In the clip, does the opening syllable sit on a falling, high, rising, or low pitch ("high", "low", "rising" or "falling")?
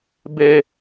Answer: high